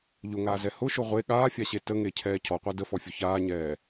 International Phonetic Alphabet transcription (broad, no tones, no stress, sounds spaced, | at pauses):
ʎ ʊ ŋ aː z ɛ h ʊ ʃ ʊ ʁʷ e ɠ aː fʲ a ɕ e t ə ŋ e cʰ ɛː cʰ ɔ qʷ æ d ə f ɔ fʲ ʊ ç aː ɲ ɛː